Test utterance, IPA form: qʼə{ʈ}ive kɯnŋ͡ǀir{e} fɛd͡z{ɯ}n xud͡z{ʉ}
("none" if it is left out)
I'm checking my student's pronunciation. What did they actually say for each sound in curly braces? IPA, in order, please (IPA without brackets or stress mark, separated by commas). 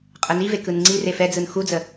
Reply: n, e, ɯ, ə